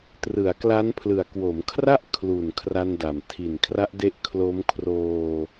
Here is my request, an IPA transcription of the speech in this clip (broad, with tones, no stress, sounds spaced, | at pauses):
t r ɯ˩˦ a̯ k l a˦˥ n pʰ l ɯ˨˩ a̯ k w o˩˦ m kʰ r a˥˩ ʔ kʰ l u˨˩ n kʰ r a˧ n d a˨˩ m tʰ i˨˩ n kʰ r a˦˥ ʔ d e˦˥ ʔ kʰ l o˦˥ m kʰ r oː˧